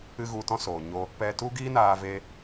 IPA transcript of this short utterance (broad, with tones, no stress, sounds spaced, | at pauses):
ɨ˦ ɣ u˧ t ɔ̃˦ s oː˨ ɲ o˦ | p ɛ˧ t u˦ ɡ iː˦ n aː˧ v e˦